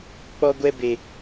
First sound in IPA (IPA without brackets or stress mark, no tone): k͡p